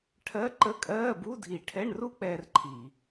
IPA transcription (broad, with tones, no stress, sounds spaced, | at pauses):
ʈʰ ɜ˧˥˧ ǃ ə˧˥˧ kʼ ɜː˧˥˧ b u˧˥˧ dʱ i˧˩˧ ʈʰ ɛ˧˥˧ ɳ r u˥ k͡p ɛː˥ r ǃʰ i˧˩˧